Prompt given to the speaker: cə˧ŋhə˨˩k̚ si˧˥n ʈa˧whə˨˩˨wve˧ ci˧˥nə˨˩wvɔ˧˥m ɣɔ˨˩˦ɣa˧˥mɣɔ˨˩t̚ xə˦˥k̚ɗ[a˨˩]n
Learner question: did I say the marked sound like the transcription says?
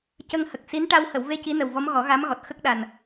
yes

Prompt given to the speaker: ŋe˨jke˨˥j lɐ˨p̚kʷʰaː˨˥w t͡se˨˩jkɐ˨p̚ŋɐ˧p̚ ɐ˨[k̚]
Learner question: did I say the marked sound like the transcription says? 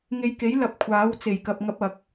yes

